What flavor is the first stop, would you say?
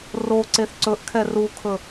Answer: click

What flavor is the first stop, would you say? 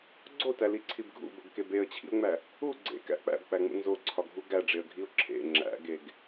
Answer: click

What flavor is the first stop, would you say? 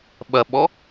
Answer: implosive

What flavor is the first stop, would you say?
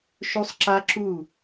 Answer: click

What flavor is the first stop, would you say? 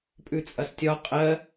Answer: ejective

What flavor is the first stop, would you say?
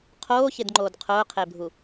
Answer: aspirated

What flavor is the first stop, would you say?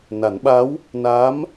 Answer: implosive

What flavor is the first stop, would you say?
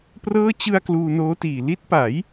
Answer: plain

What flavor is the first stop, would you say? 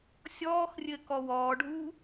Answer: plain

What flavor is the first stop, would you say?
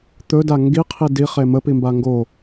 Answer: plain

